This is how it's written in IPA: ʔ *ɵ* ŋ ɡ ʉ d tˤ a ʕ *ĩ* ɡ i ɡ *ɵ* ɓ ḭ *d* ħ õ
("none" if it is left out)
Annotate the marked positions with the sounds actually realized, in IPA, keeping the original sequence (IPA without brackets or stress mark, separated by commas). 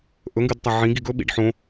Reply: ɵ, ĩ, ɵ, ɖ